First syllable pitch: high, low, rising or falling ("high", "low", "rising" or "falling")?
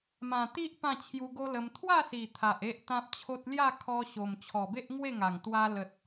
low